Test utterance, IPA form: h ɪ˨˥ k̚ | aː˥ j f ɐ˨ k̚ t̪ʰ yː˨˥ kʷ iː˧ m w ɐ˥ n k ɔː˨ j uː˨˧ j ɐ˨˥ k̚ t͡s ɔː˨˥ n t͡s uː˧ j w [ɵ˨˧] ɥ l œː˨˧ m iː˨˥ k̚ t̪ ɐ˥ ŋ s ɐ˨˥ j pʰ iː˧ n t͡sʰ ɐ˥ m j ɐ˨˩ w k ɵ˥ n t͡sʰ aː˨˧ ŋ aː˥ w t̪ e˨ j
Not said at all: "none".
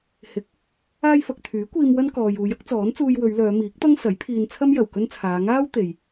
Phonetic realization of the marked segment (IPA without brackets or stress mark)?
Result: ɵ˨˧